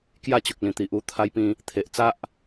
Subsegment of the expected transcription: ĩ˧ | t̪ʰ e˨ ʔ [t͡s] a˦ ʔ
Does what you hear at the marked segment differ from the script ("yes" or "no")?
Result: no